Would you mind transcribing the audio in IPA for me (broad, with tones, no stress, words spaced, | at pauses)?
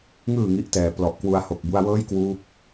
ŋɯː˨˩ ŋi˦˥ʔtɛː˩˦plɔ˨˩ʔkwu˧a̯ ho˨˩k̚bu˧a̯ wɤː˥˩jkwuː˦˥k̚